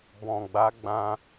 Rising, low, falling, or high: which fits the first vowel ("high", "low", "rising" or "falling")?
low